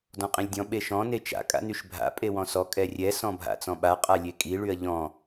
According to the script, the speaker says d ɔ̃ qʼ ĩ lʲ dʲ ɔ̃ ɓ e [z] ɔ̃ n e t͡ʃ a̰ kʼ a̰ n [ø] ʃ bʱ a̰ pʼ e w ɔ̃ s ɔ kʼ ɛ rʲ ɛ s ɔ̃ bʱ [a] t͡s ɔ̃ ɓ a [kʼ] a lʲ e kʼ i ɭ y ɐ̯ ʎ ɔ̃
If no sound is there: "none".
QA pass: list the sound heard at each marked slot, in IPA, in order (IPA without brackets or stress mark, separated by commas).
ʃ, y, a̰, qʼ